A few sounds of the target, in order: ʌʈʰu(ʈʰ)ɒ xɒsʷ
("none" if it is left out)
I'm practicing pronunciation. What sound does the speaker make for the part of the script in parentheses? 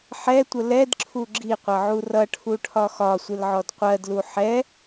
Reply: ʈʰ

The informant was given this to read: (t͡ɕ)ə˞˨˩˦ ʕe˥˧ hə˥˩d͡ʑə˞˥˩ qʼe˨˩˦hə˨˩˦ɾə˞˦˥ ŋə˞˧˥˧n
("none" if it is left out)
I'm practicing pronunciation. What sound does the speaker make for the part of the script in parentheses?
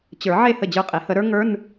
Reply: t͡ɕ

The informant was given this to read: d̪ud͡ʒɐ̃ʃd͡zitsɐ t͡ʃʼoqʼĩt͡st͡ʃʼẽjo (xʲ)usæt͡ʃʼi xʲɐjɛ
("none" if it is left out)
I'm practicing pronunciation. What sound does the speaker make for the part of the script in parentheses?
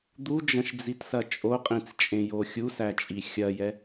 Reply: xʲ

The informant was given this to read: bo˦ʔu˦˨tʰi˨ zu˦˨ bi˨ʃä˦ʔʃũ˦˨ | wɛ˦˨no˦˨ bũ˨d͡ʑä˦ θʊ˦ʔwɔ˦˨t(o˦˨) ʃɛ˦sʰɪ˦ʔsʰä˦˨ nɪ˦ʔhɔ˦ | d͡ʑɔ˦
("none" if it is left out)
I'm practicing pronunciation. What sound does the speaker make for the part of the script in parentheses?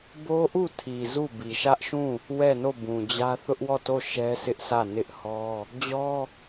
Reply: o˦˨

